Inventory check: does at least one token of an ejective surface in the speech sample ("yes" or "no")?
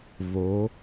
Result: no